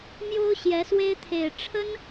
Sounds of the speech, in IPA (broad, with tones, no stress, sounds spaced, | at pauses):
m j o˥ ʊ̯ ɕ j ɛ˧˥ s w e˥ ɪ̯ t̪ʰ e˨˩ ɪ̯ ʈ͡ʂʰ ə˥ n